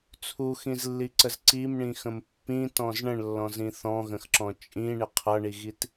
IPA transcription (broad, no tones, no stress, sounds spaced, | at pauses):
t͡sʰ u x ĩ z lː i ǀ ə z ǀ i m ɳ ĩ x ə̃ m pː ĩ t ɔ̃ z ɳ ə̃ ɳ lː ɔ̃ z ĩ θ ɔ̃ ɣ ə̃ x ǁ ɔ̃ t͡ʃʼ ĩ ɳ ɪ qʰ ʌ ɳ i ɣ i t